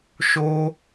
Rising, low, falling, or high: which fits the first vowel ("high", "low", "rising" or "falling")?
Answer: high